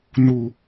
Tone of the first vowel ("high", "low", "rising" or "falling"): low